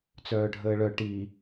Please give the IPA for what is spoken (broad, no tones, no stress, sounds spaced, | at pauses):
t͡s œː ɖʱ əː ɭ œ ʈ i